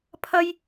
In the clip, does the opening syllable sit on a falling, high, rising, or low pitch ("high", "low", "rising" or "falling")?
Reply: high